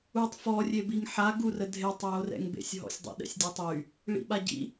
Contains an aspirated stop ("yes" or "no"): no